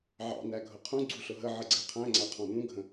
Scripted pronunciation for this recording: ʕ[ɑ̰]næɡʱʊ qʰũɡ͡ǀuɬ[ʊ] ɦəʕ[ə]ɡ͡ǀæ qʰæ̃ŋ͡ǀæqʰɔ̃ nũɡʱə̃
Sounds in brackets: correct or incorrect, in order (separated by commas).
correct, correct, correct